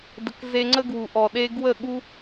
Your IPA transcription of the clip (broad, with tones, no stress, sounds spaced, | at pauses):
d ə˨ k z e˧ ŋ͡ǀ ə˦ ɡ w u˨ ʔ ɔ˨ ɗ e˦ ɡ w ə˦˨ ɠ u˦